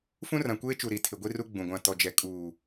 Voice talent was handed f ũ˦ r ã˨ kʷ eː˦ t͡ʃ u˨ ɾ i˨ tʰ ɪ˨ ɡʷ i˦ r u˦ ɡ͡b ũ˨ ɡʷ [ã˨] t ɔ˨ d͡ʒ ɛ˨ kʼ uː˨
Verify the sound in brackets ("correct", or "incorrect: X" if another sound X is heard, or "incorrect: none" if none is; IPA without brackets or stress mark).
correct